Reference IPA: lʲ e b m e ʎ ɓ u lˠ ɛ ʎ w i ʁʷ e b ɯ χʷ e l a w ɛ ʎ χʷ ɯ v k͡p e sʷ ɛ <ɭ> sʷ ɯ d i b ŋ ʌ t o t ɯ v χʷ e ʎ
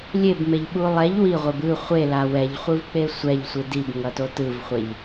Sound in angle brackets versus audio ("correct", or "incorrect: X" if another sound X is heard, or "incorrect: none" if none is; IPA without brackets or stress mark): incorrect: ʎ